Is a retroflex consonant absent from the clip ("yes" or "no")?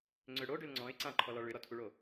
no